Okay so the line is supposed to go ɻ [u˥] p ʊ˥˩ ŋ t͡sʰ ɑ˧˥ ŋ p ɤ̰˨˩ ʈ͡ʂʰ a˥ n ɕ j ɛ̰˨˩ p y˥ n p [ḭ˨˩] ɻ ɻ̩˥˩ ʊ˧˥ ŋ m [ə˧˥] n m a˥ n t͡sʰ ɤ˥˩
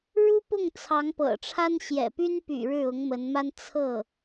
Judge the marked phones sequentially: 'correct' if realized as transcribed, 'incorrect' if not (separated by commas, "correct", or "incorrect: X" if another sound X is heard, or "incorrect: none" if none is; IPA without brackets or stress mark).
correct, incorrect: y̰˨˩, correct